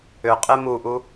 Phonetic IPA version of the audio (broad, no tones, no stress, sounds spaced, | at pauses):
ʏ qʼ e m u ʔ u